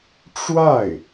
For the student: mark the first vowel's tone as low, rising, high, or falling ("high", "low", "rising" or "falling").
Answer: falling